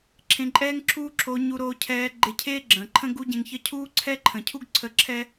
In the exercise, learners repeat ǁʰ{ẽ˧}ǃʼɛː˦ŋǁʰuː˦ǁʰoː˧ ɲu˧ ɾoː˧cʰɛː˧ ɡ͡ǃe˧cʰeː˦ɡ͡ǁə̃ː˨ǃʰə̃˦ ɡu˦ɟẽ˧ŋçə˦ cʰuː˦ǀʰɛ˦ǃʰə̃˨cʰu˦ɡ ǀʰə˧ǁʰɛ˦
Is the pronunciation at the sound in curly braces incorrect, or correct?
correct